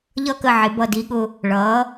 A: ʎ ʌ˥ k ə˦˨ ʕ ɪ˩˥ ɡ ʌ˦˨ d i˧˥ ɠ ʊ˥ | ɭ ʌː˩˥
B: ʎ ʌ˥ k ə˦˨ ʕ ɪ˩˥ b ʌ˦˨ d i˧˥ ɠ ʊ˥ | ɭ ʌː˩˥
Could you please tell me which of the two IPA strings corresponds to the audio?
B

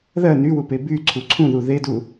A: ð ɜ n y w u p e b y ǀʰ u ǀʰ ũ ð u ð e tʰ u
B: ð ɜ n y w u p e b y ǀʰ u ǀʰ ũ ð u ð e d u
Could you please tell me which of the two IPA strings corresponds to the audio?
B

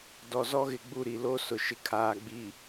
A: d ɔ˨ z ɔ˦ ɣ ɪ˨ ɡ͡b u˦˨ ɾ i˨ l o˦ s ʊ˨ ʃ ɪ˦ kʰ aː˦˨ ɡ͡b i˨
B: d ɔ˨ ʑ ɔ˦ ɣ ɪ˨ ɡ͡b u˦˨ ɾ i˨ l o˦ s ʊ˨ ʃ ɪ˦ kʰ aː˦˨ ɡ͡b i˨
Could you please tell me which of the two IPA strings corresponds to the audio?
A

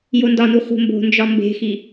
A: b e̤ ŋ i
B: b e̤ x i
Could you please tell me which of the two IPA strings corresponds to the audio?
B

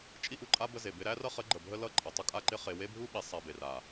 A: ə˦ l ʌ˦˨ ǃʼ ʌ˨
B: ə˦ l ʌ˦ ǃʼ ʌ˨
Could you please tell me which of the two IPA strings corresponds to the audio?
A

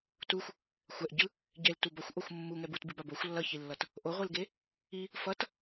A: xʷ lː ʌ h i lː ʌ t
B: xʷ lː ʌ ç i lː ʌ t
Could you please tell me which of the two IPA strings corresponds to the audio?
B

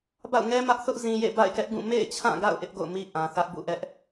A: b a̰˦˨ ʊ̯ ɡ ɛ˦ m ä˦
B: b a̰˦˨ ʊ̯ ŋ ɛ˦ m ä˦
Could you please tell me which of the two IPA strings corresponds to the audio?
B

